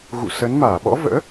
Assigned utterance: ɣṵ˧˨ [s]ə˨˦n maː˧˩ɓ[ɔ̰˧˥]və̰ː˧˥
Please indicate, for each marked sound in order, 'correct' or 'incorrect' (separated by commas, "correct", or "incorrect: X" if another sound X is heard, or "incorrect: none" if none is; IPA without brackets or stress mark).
correct, correct